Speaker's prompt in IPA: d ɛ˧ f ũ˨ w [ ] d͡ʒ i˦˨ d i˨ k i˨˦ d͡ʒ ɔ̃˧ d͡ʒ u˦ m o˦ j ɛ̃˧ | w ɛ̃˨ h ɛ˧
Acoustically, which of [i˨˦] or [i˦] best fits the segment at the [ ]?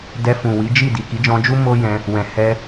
i˨˦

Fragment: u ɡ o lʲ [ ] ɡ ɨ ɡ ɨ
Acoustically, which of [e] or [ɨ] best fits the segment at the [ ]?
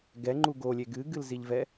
e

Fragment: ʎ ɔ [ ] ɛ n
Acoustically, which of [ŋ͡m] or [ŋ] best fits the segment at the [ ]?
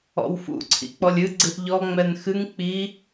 ŋ͡m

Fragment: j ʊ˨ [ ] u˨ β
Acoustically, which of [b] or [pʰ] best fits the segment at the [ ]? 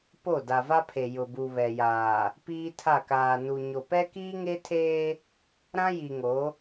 b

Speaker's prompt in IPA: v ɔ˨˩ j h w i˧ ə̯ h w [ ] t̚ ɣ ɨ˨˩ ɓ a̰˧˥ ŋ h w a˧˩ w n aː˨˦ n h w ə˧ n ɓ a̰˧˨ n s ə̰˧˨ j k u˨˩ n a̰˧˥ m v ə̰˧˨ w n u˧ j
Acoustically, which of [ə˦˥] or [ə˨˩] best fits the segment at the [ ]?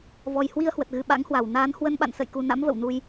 ə˨˩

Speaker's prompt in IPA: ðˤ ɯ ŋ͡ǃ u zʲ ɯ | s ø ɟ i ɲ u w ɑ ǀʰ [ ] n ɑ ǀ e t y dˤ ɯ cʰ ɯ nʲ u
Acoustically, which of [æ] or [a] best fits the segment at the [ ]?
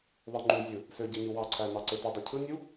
æ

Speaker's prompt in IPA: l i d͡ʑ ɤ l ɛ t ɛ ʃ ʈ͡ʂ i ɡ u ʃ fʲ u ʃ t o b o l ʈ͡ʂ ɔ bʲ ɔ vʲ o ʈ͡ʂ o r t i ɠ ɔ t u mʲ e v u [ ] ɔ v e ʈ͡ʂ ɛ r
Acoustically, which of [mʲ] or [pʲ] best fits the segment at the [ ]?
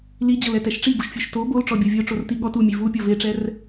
pʲ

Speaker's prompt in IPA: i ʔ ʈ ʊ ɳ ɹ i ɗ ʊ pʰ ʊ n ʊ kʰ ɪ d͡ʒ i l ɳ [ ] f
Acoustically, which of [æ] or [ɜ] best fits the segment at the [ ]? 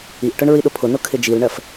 ɜ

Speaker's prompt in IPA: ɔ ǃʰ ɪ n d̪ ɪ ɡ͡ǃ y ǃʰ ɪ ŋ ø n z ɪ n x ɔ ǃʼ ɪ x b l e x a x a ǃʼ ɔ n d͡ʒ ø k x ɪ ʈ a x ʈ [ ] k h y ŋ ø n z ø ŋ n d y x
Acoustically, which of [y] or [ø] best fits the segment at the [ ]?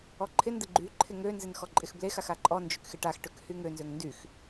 ø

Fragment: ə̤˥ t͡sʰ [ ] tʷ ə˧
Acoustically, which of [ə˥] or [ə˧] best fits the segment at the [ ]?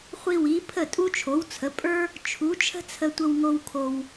ə˧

